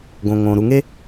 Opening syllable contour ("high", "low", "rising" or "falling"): low